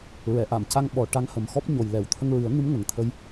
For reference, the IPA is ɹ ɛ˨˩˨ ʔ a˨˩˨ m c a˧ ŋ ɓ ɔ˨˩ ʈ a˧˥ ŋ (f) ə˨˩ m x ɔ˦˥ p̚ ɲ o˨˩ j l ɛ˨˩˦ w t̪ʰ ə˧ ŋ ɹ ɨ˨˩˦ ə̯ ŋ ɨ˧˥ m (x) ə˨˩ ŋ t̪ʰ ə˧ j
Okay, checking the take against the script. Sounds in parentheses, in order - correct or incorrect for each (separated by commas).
incorrect, incorrect